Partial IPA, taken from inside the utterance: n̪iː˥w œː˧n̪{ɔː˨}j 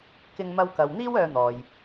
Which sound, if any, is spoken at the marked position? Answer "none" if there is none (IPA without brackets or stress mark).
ɔː˨